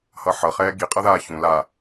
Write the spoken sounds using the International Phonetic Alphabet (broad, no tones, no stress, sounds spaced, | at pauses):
h ʌ ħ ʌ χ ɛː ɡ i qʼ ʌ ð aː ç ũ l a